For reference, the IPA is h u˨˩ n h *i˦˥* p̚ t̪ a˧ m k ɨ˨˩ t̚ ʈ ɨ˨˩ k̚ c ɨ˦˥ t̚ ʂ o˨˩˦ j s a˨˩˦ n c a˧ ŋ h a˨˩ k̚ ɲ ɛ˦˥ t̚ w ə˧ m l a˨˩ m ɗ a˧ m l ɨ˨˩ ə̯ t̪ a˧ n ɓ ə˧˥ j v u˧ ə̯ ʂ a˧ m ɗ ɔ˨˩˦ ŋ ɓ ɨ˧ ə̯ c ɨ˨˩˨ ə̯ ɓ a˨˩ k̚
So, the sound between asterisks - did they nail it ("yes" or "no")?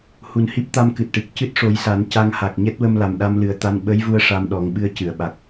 yes